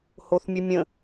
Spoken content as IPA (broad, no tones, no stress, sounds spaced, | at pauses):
h o θ mʲ ɘ mʲ ə̃